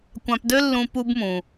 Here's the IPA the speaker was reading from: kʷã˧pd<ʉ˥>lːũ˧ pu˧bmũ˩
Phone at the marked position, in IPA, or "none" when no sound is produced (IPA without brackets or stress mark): ø˥